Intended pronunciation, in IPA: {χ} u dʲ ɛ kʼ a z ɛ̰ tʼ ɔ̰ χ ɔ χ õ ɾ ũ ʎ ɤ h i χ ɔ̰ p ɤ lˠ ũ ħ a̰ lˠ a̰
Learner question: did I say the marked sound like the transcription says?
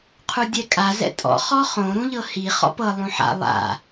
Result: no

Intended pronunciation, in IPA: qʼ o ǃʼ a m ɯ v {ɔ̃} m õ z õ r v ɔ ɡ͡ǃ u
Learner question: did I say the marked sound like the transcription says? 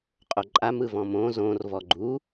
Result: yes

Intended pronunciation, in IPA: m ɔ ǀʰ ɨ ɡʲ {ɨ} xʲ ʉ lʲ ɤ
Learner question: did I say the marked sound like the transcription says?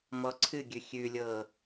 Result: no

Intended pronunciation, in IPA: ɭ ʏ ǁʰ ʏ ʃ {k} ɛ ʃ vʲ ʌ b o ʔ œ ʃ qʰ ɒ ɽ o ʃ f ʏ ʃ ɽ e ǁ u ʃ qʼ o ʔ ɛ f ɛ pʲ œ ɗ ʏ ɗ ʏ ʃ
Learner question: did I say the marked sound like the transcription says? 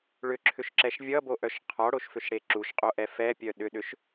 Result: no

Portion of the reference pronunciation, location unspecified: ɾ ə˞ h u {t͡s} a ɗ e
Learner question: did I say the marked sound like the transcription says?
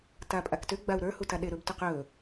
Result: no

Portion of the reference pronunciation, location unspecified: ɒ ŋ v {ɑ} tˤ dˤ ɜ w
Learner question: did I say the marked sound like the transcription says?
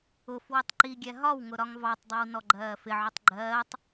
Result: yes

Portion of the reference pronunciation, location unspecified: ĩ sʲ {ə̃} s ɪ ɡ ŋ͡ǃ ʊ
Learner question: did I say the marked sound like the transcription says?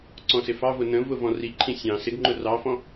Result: no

